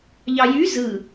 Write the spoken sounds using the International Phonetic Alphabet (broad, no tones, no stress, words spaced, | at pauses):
ʎɑjy zɯ